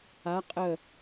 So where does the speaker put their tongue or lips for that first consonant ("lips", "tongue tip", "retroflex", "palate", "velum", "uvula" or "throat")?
uvula